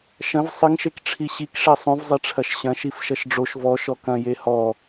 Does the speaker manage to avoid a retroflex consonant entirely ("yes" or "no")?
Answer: no